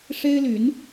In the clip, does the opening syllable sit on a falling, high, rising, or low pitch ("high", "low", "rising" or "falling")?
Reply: high